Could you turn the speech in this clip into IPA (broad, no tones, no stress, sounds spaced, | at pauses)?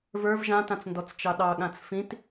v ə˞ v ʒ ã t ã t͡s n d ɔ t͡s t͡ʃ ɑ ɗ ɑ ɠ ã t͡s f ĩ t